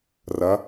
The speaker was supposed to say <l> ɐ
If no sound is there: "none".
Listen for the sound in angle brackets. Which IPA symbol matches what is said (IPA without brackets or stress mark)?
r